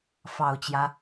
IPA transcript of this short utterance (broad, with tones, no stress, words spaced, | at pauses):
fɑ˨˩ʊ̯t͡ɕjä˦